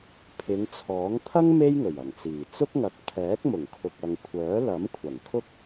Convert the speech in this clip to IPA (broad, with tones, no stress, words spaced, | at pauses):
pʰɪ˨˧ŋt͡sʰɔː˨˥ŋ t̪ʰɐ˥ŋ me˥jŋɵ˨˩ɥɐ˨˩ŋt͡siː˨˩ t͡sʊ˥k̚ŋɐ˨k̚ pʰɛː˨˥k̚mʊ˨˩ŋkʰʊ˨k̚ ɐ˨ŋkʷʰœː˨˥lɐ˨˥mkʷʰɐ˨˩ŋ kʰʊ˥k̚